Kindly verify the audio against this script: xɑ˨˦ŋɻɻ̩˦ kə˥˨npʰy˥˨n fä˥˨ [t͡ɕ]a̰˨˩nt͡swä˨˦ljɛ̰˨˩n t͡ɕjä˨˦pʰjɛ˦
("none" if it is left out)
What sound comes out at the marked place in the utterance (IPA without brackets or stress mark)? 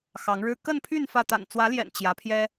t̪